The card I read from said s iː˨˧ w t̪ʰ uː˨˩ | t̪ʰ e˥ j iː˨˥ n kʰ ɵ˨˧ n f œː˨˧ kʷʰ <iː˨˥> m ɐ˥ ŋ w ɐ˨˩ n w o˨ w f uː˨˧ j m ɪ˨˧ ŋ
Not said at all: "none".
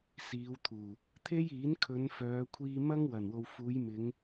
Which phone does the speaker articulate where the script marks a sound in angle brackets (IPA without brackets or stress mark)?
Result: iː˧